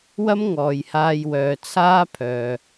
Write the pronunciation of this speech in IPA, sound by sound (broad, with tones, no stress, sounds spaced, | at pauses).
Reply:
w ɐ˥ m ŋ ɔː˨ j h aː˧ j w œː˨ t͡sʰ aː˥ pʰ œː˨